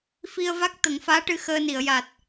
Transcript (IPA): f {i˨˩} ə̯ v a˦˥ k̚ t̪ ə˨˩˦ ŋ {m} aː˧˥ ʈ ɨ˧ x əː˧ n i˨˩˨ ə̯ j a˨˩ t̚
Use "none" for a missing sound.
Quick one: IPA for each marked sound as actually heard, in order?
i˧, f

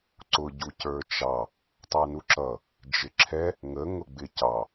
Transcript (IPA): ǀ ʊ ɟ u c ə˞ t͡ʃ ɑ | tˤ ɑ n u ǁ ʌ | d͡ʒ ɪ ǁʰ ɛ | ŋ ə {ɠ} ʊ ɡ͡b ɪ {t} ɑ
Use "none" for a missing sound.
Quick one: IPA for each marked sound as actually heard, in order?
ŋ, c

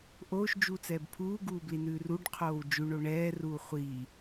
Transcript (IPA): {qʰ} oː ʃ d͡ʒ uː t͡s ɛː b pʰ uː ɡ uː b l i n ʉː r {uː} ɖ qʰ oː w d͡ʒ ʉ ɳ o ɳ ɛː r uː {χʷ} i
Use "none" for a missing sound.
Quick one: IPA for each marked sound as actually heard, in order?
ʔ, u, χʷ

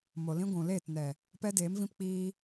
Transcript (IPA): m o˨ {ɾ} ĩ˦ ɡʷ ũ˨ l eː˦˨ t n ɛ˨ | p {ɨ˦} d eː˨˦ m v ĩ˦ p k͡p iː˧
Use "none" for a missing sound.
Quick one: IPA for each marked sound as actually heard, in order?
l, ɛ˦

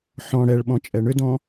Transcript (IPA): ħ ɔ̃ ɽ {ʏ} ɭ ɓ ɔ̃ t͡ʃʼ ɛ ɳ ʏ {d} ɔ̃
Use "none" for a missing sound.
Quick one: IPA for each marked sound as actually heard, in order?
ɛ, d

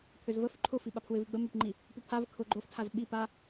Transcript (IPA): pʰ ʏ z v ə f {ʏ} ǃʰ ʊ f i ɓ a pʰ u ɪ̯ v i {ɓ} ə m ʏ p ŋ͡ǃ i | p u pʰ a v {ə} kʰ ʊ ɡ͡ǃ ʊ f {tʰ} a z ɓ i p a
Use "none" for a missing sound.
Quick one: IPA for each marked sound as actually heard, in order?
ʏ, ɡ͡b, ə, tʰ

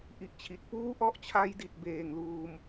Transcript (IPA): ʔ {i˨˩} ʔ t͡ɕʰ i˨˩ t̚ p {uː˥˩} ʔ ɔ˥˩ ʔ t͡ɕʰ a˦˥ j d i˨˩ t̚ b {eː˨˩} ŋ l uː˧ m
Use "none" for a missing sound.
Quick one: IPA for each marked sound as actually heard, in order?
i˨˩, uː˥˩, eː˨˩

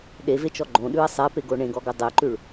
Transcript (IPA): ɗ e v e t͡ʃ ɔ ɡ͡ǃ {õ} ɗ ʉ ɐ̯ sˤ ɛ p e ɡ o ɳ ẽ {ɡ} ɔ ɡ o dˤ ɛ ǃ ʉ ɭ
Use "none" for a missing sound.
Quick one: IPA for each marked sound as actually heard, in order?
õ, ɡ

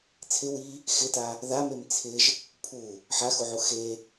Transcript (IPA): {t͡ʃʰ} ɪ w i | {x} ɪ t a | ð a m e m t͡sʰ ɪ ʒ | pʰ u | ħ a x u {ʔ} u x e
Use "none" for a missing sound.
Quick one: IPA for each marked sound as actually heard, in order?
t͡sʰ, x, ʕ

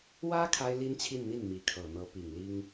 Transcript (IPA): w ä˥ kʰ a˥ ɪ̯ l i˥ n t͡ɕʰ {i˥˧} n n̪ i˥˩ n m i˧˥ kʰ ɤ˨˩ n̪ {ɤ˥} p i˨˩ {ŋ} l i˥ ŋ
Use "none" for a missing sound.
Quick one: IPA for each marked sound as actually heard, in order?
i˥˧, ɤ˧˥, ŋ

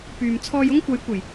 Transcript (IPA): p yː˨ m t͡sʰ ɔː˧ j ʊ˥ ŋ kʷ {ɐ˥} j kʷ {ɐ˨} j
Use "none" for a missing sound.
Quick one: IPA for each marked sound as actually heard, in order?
ɐ˨˧, ɐ˨˩

